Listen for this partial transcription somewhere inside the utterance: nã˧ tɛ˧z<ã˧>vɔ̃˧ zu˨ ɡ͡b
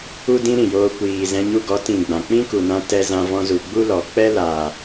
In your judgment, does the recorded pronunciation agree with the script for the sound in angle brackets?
yes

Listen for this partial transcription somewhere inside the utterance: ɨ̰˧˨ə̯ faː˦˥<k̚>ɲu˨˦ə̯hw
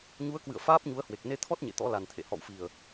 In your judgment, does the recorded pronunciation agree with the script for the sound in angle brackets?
no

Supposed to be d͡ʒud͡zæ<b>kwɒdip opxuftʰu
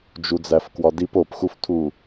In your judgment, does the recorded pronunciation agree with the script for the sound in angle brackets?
no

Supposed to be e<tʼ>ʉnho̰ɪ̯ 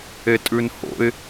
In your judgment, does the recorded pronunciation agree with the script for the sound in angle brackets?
yes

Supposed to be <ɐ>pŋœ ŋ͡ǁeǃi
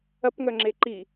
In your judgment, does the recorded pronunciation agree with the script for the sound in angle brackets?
yes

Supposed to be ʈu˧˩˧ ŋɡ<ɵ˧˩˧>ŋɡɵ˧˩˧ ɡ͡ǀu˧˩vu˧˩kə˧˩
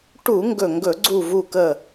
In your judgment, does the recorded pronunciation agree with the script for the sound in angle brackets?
no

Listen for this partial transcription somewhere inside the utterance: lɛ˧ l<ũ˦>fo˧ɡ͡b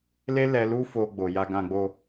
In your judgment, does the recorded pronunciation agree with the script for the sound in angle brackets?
no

